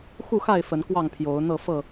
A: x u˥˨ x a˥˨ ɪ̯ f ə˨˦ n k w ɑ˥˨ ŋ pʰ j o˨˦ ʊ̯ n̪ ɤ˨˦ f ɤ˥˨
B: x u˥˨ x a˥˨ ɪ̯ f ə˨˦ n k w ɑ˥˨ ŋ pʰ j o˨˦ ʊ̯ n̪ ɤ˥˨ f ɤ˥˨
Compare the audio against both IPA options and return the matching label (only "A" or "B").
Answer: B